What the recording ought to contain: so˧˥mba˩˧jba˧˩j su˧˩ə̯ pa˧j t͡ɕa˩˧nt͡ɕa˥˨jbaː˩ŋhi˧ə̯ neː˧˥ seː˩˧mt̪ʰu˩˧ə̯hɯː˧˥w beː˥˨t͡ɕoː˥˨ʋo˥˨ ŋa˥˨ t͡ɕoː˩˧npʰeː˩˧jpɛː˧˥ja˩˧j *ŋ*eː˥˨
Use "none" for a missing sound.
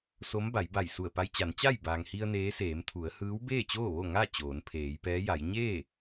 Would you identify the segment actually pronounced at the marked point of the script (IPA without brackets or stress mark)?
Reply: ɲ